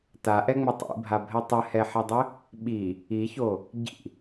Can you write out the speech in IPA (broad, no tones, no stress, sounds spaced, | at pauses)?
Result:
t a ʔ ɛ ŋ͡m ɘ tˤ ḭ bʱ a bʱ ɛ tˤ ɘ h ɛ ħ ɛ dˤ ɘ | ɓ i | i ç o | ɟ ḭ